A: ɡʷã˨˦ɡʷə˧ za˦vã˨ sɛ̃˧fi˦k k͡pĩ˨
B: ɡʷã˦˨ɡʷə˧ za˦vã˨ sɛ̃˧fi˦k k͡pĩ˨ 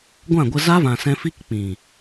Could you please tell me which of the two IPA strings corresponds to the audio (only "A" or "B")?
B